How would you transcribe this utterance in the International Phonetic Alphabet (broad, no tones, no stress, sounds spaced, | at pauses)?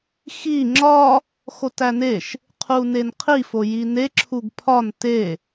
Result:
x i ŋ͡ǁ ɒ | x o t æ n e ʃ | qʰ u n e n qʰ i f o j i n e ǁʰ u ɡ pʰ ɒ n t e